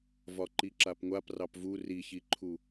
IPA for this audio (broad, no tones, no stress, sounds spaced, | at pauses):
v ɒ ǃ i ǁ a p ŋʷ a p r ɑ p v u r i ç i ǃʰ u